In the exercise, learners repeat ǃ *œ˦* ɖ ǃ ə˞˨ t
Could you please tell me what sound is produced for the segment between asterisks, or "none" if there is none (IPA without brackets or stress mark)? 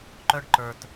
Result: œ˦